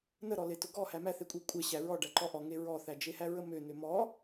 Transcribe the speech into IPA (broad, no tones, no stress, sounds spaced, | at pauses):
n ə ɾ ɔ l e t ʊ ɡ ɔ h æ m æ θ e kʷʼ e kʷʼ e ɕ æ ɹ ɔ ɖ æ ǃ ɔ ʔ ɔ ŋ e ɹ ɔ θ æ d͡ʒ e h æ ɹ ə m ø n ø m ɔ